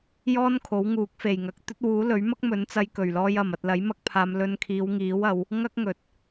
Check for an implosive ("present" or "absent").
absent